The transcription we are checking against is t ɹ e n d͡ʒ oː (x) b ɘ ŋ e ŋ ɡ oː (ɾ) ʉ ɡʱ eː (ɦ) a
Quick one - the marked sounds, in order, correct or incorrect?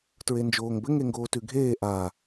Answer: incorrect: ŋ, incorrect: t, incorrect: ʔ

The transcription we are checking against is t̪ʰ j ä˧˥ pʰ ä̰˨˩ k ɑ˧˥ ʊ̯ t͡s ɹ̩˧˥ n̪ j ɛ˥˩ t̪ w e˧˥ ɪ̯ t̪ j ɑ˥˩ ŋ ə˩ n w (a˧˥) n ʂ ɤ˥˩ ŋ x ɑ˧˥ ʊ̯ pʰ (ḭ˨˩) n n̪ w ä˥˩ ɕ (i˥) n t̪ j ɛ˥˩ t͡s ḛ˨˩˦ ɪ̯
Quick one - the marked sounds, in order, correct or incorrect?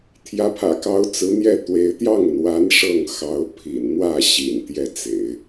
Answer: correct, correct, incorrect: ḭ˨˩

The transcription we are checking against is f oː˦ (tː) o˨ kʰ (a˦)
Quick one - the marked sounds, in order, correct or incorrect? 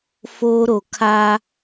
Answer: incorrect: ɾ, correct

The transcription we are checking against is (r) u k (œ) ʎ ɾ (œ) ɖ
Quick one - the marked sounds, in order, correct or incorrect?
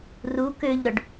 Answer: correct, incorrect: ø, correct

